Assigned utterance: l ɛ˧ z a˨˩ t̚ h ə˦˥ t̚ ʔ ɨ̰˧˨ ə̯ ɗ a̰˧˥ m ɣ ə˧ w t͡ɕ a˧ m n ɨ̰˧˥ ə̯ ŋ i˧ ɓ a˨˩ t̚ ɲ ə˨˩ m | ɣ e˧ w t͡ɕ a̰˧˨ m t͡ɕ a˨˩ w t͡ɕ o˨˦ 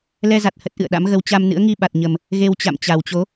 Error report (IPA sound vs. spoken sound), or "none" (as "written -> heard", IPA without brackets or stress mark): none